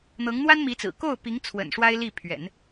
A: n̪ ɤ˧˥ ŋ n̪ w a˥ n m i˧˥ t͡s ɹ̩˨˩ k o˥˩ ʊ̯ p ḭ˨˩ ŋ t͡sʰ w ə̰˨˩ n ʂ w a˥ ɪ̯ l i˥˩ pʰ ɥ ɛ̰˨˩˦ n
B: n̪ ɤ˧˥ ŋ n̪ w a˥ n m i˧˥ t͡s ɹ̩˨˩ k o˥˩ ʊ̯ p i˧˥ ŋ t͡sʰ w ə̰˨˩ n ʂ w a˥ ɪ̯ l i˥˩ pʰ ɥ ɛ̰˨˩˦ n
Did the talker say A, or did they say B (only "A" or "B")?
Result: B